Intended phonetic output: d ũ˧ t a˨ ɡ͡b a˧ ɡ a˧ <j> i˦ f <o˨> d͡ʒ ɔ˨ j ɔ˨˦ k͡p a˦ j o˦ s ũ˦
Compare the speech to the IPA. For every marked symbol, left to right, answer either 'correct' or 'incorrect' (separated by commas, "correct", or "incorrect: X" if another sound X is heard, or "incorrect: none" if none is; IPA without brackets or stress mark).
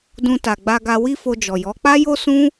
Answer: incorrect: w, incorrect: o˧